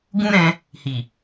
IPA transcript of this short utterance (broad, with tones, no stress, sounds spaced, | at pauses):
ɡ ũ˦ ɾ ɛ̃˧ | h i˨